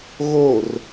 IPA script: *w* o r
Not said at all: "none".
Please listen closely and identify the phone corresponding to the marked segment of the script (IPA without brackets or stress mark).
ɣ